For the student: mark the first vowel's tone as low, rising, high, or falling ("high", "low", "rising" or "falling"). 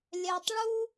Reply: low